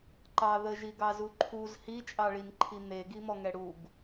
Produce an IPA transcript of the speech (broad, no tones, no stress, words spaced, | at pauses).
ǃɑ ðəʒiɡɑzu ǃʰuz hit͡ʃʼɑɭinǃʰi n̪eɡimɔŋɛ ɽuɡ